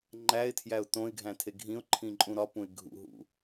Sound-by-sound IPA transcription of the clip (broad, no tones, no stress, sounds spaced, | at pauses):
ŋ͡ǃ æ ɪ̯ tʰ j æ ʊ̯ t õ ɪ̯ ɡʱ æ̃ tʰ e ɡʱ ĩ ʊ̯ ǃʰ ĩ ǃʼ ũ ɾ ɒ p ũ ɪ̯ ɡʱ ṵ ɦ ṵ